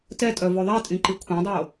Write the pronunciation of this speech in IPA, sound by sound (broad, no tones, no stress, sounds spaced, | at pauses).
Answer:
t ɛ tʼ œ v o ðˤ ɛ tʼ ĩ ǃ i kʷʰ ẽ dˤ o